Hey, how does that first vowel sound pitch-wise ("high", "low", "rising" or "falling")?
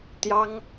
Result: high